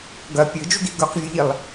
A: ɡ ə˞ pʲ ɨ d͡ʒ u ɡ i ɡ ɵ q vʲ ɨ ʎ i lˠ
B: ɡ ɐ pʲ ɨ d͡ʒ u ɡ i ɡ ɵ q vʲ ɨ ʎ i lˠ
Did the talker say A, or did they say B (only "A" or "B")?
B